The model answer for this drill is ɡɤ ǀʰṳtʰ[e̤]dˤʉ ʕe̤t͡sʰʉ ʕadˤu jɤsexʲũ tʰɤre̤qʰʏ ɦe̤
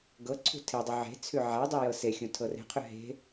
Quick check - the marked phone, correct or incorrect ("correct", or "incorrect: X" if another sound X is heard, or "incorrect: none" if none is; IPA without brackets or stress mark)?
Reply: incorrect: e